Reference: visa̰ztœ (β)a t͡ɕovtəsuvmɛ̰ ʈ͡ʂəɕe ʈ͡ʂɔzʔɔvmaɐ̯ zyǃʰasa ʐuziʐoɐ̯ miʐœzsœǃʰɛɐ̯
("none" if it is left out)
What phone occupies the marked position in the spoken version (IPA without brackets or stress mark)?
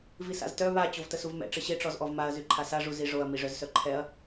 β